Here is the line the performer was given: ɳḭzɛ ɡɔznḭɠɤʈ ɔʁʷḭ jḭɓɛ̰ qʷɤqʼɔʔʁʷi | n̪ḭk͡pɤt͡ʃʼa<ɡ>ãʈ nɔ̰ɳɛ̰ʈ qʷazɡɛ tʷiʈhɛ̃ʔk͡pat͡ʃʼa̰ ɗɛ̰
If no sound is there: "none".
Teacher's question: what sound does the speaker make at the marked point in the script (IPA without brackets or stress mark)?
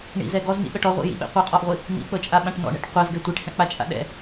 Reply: ɓ